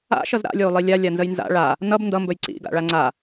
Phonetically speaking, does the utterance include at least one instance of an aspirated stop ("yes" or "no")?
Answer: no